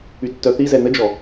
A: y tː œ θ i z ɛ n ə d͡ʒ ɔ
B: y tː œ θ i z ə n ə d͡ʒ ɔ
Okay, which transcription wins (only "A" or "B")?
A